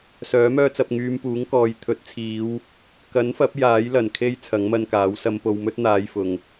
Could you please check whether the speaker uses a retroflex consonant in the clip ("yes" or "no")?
no